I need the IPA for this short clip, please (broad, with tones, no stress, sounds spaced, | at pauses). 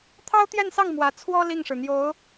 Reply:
t̪ʰ ɑ˥ ʊ̯ t̪ j ɛ˥˧ n s ɑ˥˩ ŋ m w ä˧˥ t͡sʰ w ɔ˥ l i˥˩ ŋ ʂ ɻ̩˩ n̪ j o˧˥ ʊ̯